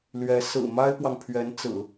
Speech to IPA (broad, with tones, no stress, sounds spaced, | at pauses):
l ɥ ɛ˧˥ s ɹ̩˨˩ m a˥ ɪ̯ p w ɑ˨ ŋ pʰ ɥ ɛ˧˥ n t͡s ɹ̩˨˩˦